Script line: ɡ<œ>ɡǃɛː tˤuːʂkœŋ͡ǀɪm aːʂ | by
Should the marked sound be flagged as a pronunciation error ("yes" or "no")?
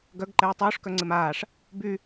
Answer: no